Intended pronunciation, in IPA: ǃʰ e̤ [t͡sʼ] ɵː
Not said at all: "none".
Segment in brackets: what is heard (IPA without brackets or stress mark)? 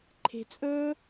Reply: t͡sʼ